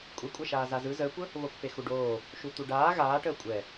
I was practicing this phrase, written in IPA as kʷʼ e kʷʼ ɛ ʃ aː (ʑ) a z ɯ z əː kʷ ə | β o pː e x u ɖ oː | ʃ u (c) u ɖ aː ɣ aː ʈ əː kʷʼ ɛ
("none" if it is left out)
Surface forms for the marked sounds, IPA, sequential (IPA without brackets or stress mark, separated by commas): z, t̪